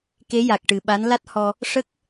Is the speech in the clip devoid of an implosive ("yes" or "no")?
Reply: no